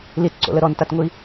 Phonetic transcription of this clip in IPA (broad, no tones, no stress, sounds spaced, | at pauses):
l i t ǀ o̰ l ə ɾ ɔ n t a t ŋʷ i